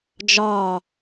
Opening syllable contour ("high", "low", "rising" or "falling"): low